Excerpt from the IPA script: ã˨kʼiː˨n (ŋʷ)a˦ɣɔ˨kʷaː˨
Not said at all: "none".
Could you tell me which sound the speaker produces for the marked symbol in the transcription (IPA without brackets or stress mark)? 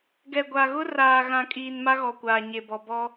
m